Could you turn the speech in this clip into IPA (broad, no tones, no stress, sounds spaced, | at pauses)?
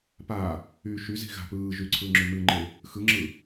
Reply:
p aː | yː ʃ y z i̤ ɣ a̤ p ɯː ʒ y ǀʰ ɯː ŋ͡ǁ y m ɨ ŋ͡ǃ e | x ɯ ŋ͡ǁ ɯː